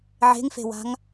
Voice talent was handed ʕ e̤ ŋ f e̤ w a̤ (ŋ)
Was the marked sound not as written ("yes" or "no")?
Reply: no